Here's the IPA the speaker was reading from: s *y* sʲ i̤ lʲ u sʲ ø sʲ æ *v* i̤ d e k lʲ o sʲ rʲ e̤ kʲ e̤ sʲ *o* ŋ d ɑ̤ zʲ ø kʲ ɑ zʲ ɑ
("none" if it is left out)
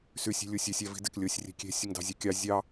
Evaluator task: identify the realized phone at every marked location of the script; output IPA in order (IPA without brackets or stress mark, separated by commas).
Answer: y, v, o